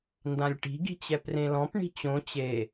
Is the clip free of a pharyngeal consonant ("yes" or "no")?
yes